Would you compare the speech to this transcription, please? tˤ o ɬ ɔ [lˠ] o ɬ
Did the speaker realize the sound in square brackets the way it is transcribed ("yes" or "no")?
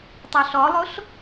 yes